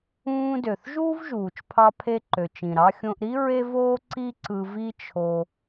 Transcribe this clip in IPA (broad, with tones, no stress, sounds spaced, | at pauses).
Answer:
ũː˧ d ø˩ θ ʒ uː˥ v ʒ uː˩ t͡ʃ pʰ ɑ˧ pʰ e˧ ǃ ø˩ t͡ʃ ĩ˩ ɾ ɑ˧ xʲ õ˧ ʔ ɾ i˥ ɹ e˥ v oː˥ ǀ i˥ ǀ ɯ˧ v i˥ t͡ʃʰ o˧